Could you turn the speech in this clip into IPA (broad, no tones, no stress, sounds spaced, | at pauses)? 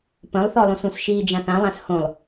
p ə̃ lˠ θ ɔ lˠ ũ s ũ s ʃ iː d͡ʒ ã θ ã lˠ ã s h õ lˠ